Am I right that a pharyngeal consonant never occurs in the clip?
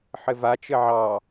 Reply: no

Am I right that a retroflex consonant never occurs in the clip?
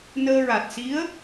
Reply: yes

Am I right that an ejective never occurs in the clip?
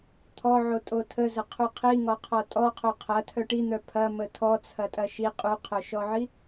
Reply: no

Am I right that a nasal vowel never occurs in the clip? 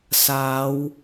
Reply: yes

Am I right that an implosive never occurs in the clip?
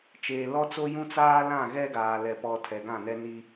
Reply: yes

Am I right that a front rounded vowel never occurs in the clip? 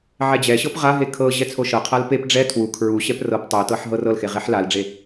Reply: yes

